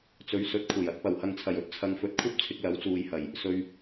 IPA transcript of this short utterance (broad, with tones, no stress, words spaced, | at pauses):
t͡sɵ˨˥ɥsɵ˨˥t̚kʷʰɐ˨˩jɐ˧t̚ pɐ˨˩whɐ˨ŋt͡sʰɐ˨˩jɵ˧t̚ t͡sʰɐ˨ŋfɵ˨t̚kʷʰɐ˥p̚ t͡sʰɪ˧k̚lɐ˨˥wt͡suː˨jhɐ˨˩j | sɵ˨ɥ